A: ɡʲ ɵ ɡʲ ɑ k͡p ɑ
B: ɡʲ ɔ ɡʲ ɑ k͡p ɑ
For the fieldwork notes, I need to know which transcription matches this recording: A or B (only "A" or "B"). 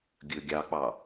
A